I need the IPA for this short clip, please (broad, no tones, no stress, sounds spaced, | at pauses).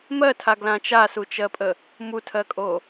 m ɜ tʰ a ɡ l ã t͡ʃ a s u t͡ʃ ɜ pʼ ə | m u tʰ ɜ kʼ o